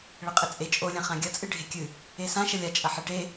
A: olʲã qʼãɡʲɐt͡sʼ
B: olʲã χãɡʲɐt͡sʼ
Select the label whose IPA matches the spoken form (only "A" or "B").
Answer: B